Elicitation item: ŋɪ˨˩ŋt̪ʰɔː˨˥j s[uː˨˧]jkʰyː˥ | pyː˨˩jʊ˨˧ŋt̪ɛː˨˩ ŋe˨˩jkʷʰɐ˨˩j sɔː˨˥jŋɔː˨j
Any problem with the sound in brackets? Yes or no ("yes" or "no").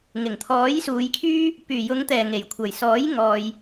no